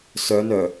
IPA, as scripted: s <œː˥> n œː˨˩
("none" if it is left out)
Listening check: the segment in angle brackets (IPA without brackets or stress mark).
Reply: œː˨˧